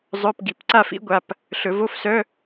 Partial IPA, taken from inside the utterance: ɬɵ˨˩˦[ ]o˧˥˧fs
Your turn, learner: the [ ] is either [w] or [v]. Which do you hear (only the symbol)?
v